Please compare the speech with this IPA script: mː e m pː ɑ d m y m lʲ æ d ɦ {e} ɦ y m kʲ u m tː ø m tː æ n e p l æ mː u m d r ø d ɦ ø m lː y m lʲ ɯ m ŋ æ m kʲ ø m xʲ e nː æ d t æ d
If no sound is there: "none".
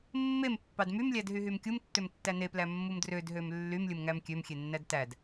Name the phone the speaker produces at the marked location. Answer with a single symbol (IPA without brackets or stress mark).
y